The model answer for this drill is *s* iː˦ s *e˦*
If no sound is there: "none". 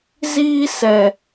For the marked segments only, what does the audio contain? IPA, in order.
z, ɛ˦

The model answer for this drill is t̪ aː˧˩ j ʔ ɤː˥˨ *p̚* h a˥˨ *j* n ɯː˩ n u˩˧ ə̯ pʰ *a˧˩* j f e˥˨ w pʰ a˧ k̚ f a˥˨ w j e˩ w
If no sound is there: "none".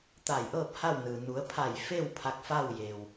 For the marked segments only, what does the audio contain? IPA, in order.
p̚, w, a˧˩

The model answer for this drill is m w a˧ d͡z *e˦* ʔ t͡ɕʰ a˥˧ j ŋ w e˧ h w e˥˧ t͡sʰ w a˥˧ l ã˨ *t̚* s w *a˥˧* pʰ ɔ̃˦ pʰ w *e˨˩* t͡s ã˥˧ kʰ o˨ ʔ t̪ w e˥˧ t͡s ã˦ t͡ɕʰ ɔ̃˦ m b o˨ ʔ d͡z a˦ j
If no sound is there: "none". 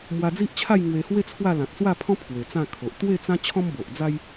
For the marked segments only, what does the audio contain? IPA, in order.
i˦, t̚, a˥˧, e˨˩

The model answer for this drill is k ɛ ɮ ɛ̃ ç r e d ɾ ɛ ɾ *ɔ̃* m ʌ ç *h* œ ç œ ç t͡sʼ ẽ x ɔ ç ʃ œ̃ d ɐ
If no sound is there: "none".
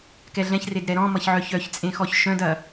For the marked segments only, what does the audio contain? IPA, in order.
ɔ̃, ʕ

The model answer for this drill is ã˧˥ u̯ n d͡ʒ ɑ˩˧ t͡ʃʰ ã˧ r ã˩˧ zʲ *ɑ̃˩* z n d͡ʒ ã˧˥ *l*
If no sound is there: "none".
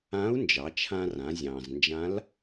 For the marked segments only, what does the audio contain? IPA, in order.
ɑ̃˩, l

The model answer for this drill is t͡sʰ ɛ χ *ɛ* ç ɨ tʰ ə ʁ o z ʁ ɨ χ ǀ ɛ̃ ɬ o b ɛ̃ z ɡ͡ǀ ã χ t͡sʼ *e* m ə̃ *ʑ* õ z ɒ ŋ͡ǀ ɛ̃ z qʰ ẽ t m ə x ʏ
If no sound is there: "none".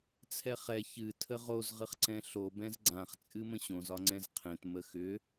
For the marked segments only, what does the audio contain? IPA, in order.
ɛ, ɨ, ɕ

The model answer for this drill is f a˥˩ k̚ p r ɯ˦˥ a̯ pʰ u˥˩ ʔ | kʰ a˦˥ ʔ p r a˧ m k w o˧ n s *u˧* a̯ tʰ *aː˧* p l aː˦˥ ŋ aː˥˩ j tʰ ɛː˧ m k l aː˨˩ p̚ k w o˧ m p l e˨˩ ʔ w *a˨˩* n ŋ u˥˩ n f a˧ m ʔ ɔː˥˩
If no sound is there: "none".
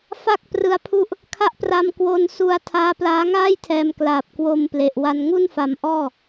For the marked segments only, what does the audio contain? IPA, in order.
u˧, aː˦˥, a˧

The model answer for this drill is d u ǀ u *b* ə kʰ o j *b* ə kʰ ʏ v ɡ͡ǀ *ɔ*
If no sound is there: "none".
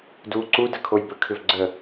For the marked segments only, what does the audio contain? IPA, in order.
d, b, ə

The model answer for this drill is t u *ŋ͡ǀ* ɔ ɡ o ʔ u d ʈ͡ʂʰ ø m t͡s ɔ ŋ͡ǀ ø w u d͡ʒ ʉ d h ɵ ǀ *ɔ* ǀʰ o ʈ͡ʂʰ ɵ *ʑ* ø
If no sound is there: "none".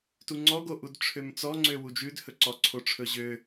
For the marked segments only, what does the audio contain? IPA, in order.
ŋ͡ǀ, ɔ, ʑ

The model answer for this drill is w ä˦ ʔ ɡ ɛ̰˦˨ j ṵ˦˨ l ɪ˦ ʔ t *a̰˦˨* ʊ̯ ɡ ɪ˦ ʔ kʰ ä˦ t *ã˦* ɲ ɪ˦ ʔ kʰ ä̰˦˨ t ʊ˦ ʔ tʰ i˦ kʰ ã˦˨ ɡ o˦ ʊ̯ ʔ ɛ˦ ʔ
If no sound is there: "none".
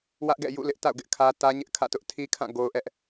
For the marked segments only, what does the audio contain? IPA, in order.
a̰˦˨, ä˦

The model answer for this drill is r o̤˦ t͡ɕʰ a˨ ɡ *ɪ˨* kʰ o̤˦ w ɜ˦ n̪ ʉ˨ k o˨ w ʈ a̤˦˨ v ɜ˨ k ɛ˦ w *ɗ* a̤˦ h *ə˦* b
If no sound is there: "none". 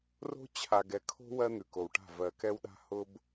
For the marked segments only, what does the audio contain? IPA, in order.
ɛ˨, ɗ, ʊ˦

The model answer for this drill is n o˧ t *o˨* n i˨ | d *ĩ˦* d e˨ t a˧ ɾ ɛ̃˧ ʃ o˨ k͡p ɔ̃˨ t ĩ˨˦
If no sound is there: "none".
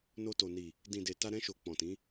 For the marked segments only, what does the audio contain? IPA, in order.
o˨, ĩ˨

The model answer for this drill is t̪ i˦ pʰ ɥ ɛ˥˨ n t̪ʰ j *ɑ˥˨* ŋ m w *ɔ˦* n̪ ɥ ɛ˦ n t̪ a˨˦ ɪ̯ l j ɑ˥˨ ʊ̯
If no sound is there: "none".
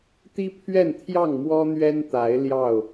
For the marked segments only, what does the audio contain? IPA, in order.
ɑ˥˨, ɔ˦

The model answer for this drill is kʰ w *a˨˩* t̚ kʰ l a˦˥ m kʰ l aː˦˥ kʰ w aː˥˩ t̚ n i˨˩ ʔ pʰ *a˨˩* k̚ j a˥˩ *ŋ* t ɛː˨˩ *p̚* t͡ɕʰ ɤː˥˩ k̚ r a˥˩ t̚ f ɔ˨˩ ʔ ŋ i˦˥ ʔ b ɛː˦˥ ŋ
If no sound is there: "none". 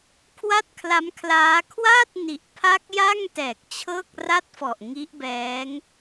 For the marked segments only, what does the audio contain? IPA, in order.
a˥˩, a˦˥, ŋ, k̚

